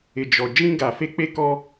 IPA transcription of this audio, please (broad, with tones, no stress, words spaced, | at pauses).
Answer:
ɪ˨d͡ʒɔ˨ d͡ʒĩ˦ ɡa˨fe˦k͡pe˦kɔ˦